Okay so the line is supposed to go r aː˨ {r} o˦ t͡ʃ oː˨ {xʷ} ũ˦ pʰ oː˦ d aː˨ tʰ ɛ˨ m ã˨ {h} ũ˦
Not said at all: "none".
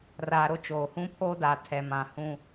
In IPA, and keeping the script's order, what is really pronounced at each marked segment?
ɾ, h, h

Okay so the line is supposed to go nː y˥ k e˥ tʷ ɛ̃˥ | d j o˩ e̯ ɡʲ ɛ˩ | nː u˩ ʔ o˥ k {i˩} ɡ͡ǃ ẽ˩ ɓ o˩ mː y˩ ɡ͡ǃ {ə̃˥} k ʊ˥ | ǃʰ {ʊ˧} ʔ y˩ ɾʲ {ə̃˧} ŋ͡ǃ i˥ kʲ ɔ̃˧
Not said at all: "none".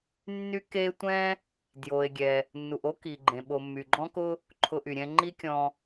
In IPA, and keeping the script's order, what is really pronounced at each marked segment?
i˩, ɔ̃˥, ʊ˧, ɛ̃˧

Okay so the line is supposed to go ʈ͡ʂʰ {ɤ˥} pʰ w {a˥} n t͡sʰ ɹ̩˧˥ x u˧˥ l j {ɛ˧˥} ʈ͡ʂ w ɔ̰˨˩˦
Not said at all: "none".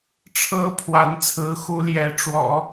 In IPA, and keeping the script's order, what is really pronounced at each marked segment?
ɤ˥, a˧˥, ɛ˧˥

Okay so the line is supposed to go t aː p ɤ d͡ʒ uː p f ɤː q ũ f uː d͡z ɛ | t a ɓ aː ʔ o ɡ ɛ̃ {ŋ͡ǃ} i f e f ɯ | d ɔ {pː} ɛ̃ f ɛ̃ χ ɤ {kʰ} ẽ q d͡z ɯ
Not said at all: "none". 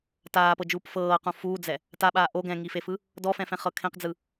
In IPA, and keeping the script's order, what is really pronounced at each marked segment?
ŋ, f, kʰ

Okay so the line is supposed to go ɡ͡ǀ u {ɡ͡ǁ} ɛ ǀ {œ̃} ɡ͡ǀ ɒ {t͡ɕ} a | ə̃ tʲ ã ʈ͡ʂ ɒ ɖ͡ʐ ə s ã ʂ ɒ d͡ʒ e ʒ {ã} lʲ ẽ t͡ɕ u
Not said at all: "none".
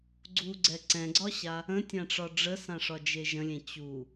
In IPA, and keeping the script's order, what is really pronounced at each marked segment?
ɡ͡ǀ, ɛ̃, ɕ, ə̃

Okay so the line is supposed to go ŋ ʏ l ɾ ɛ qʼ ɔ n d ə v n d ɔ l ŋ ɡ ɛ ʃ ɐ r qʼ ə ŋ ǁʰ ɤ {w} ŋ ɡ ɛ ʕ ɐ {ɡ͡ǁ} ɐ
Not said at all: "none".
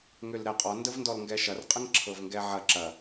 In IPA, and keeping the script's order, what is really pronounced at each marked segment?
v, ǁ

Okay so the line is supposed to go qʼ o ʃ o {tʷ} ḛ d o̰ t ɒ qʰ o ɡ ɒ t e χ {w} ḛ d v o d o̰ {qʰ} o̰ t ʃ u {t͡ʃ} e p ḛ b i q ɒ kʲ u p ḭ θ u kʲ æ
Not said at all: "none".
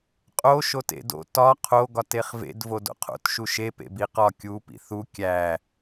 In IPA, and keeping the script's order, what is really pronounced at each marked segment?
t, v, qʰ, ʃ

